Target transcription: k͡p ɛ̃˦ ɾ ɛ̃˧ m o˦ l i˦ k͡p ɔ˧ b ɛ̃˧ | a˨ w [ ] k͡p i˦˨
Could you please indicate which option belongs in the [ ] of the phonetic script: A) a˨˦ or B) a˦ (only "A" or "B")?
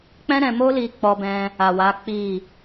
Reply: A